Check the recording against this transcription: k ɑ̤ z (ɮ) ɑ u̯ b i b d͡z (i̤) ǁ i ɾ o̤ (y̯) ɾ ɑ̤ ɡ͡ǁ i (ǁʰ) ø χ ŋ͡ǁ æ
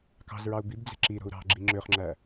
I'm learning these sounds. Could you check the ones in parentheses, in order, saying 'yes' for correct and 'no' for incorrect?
no, no, no, no

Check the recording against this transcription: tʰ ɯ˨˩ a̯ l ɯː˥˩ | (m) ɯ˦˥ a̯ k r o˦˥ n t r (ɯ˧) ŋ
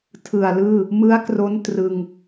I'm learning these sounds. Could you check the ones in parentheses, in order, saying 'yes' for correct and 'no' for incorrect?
yes, yes

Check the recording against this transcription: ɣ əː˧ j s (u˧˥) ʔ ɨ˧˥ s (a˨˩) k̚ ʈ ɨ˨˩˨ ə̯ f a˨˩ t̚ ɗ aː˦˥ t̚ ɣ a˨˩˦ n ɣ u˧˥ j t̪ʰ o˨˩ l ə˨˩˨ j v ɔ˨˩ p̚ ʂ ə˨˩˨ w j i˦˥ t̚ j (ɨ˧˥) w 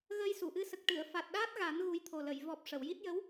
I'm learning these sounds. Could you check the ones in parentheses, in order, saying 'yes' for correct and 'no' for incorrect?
no, no, no

